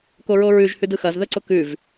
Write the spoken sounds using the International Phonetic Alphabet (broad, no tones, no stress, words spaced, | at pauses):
koɹoɹʉʒ hʉdɯxɐz ðəǀʊkʉv